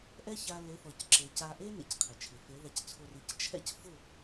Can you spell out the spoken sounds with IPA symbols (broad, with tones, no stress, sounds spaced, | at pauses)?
ʔ ɛ˦ ç a˧ l e˨˦ θ ɔ˨ c ǁ e˨ c a˧ ʔ e˦ n ḛ˧ c qʰ ɪ˨ t͡ʃʰ ɪ˨ f e˨˦ ð a˧ c t͡sʰ o˧ r i˨˦ c t͡ʃʰ ɛ̰˦ c f ʊ˦˨